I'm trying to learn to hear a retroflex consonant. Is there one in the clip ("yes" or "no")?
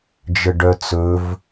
yes